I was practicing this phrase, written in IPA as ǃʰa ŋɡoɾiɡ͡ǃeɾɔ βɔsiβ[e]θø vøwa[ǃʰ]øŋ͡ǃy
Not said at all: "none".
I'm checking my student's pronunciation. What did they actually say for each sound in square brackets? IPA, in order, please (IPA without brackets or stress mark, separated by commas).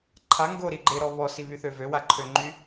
y, ǃʰ